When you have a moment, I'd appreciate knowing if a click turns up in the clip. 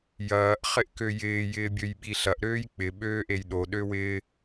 no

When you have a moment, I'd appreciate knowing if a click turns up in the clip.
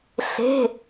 no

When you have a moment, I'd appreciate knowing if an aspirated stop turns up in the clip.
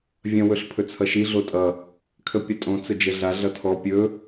yes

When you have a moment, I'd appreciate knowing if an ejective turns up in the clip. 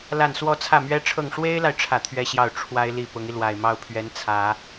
no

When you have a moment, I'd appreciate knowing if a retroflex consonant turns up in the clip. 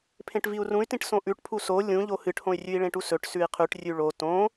yes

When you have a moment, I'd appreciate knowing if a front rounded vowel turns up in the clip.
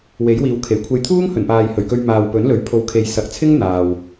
no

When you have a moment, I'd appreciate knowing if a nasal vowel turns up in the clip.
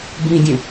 yes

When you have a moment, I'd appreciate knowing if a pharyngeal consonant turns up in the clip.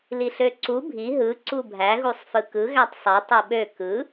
no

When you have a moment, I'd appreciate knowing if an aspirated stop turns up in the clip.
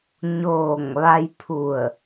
yes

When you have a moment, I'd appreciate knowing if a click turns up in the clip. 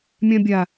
no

